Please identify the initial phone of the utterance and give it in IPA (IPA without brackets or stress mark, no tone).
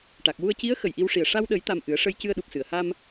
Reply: ʈ